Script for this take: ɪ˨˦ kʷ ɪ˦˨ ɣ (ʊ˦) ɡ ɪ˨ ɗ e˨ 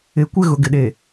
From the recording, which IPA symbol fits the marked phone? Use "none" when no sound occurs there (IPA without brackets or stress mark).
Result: ʊ˨